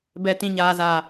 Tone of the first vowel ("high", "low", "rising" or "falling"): low